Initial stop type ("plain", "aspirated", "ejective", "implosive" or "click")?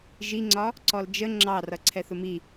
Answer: click